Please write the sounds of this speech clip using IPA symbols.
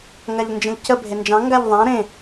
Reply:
ŋ a ʎ n d͡ʒ ə̃ ʎ c ə bʱ e n d͡ʒ ɑ̃ ŋ ɡ a ʎ ðˤ ã ɾ ẽ

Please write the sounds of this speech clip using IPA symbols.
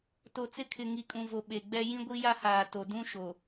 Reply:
t o˨ t͡s ɪ˦ kʰ ɪ˨ ŋ i˨ kʼ ũ˨ v o˨ ɓ e˨ ɡ͡b ɛ˦ j ĩ˦ ɡʷ i˦ j a˦ h aː˨ t o˨ d ũ˦ ʃ o˨

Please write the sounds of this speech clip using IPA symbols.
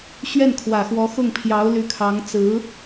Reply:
ɕ ɥ ɛ˥˩ n kʰ w ä˨˩ x w ɔ˧˥ x ʊ˥˩ ŋ pʰ j ɑ˧˥ ʊ̯ l y˧˥ kʰ ɑ˧˥ ŋ t͡s ɹ̩˧˥

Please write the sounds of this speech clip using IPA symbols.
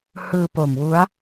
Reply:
h ɯː˧ p o˨˩ m w u˦˥ a̯

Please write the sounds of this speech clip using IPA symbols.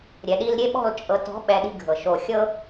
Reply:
ɾʲ ɛ˨ ɗ i˧ l ɾʲ e˦ ɓ ɔ̤˦˨ l t͡ʃʼ ɤ˨ t ɔ̤˨˦ ɓ ɛ˨ ɗ i̤˦ ɡʱ ɤ˨ ʃ o˧ xʲ ɤ˦

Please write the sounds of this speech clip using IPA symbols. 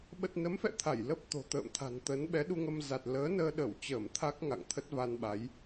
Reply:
ɓ ə˨˩ t̚ n ə˨˦ m f ɛ̰˧˨ t̪ʰ a˧˩ j l ə˦˥ p̚ t̪ o̤˨˩ t̪ ə̰ː˧˨ m t̪ʰ a̤˨˩ n t̪ ə˨˦ n ɓ ɛ˨˦ ɗ u˧ ŋ ə˧ m z a˨˩ t̚ l əː˨˦ n əː˧ ɗ ə˧˩ w t͡ɕ əː˧˩ m t̪ʰ a˦˥ k̚ ŋ a̰˧˨ ŋ t̪ʰ ə˦˥ t̚ v a˧ n ɓ a˨˦ j

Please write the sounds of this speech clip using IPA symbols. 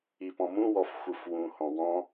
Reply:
i p ɔ̃ m ũ w ɔ f xʷ ɯ f w ũ h ɔ̃ w ɔ̃

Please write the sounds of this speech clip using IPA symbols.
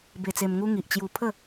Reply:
b e˧ t͡s e˧ m ŋ u˦ ŋ i˨ ʔ t͡ɕ j u˧ pʰ ə˥˧

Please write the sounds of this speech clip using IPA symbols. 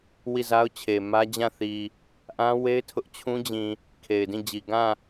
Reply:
w i˦˨ z a˦ ʊ̯ t͡ɕʰ e˨ m ä˦ d͡ʑ ã˦˨ θ i˨ | ʔ ã˦ w e˦ ɪ̯ tʰ ʊ˦ ʔ t͡ɕʰ ũ˦ d͡ʑ ĩ˨ | kʰ e˨ ɪ̯ d ĩ˦˨ d͡ʑ i˨ ɡ ã˦˨

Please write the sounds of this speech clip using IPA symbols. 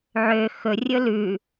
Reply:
ʕ ø x ɵ rʲ ɵ l ʉ

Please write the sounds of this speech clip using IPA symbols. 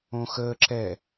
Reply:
õ x əː ǁ ɛ

